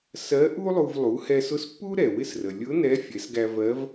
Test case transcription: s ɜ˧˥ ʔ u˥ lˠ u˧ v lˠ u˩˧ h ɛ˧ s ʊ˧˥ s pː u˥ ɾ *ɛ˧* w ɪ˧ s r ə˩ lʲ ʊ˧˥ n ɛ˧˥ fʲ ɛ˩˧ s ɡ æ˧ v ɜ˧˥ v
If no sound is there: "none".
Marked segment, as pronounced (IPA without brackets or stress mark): ɛ˩